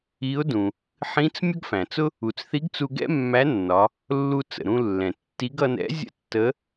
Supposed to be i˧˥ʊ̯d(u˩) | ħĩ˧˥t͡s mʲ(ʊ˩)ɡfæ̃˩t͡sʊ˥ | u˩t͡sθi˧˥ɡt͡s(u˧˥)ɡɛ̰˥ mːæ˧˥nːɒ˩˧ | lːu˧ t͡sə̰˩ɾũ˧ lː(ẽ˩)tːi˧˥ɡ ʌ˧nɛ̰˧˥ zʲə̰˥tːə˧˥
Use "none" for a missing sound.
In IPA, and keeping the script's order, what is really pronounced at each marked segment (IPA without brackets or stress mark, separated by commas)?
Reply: ũ˩, ʊ˥, u˧, ɛ̃˩